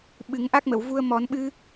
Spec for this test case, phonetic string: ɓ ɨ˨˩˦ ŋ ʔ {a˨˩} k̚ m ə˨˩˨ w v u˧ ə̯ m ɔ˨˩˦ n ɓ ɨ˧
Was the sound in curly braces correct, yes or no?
no